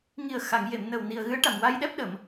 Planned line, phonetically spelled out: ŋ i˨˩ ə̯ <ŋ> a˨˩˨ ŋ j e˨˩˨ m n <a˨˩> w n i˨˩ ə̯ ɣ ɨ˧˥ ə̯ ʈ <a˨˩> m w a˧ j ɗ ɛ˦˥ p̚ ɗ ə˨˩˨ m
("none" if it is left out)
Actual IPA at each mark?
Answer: x, ə˨˩, a˨˩

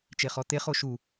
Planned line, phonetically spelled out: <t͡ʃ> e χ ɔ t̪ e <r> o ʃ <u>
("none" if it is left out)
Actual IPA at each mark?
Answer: t͡ʃ, χ, u

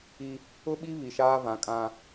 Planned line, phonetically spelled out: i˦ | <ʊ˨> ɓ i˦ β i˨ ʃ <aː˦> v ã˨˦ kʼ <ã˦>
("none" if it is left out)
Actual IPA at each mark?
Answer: ʊ˦, aː˦, ã˦

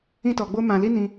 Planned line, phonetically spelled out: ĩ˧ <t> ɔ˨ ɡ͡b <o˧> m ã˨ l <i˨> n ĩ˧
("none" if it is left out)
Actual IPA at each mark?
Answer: t, o˧, i˧

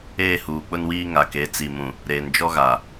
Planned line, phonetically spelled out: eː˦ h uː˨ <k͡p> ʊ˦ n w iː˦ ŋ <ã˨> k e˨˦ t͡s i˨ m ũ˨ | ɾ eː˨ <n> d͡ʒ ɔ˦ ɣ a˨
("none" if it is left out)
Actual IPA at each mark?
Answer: k͡p, a˨, n

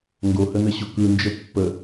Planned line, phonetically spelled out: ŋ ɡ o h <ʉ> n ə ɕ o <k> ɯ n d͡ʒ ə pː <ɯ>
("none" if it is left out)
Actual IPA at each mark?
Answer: ə, k, ə

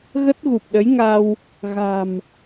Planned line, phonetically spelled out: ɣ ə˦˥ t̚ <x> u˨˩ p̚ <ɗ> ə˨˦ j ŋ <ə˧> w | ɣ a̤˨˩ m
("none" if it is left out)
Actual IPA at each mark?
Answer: ɣ, ɗ, a˧

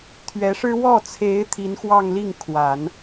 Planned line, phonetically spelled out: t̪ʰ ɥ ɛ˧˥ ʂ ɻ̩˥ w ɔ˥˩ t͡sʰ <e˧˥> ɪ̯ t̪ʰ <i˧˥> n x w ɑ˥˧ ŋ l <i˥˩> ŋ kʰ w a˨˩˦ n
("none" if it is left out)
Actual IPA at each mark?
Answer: e˧˥, i˧˥, i˥˩

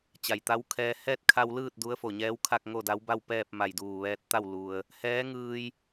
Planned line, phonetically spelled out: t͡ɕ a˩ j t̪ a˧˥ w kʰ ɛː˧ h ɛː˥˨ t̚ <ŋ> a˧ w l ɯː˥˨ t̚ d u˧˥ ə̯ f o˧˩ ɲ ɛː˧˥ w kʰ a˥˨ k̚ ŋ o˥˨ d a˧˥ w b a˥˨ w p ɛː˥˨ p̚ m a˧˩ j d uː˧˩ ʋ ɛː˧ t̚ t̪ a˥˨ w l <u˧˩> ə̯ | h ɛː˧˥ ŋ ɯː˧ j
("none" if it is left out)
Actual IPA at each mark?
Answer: kʰ, u˩

